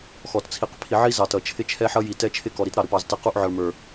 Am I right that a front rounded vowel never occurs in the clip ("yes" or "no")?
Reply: yes